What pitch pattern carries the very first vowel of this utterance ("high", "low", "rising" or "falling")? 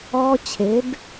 high